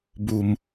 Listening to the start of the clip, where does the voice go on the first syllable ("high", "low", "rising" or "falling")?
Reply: low